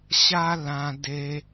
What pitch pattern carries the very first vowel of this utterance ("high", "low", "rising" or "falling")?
high